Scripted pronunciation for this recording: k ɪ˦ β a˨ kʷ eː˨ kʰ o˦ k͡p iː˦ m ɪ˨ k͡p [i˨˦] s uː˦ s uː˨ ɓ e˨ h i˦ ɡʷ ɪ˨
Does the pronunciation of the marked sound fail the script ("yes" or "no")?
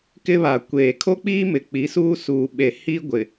no